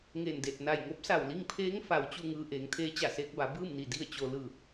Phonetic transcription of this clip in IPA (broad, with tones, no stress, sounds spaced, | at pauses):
ŋ e˧˩ n d e˧˩ t̚ n a˧˩ j ŋ o˧˥ p̚ s a˧˩ w l i˥˨ ŋ pʰ eː˧˥ ŋ f a˩ w t͡ɕ u˥˨ ŋ ɯː˧ ʔ eː˩˧ ŋ t̪ʰ eː˧˥ t͡ɕ a˧˩ s eː˧ k̚ b a˩˧ b ɯː˥˨ m n i˧˩ d i˥˨ ə̯ t͡ɕ o˧ l ɯː˧˩ k̚